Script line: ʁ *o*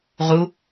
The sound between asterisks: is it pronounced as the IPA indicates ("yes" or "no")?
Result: no